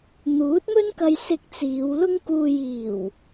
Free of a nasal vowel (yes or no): yes